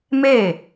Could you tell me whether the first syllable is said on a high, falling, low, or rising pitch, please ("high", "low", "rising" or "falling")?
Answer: falling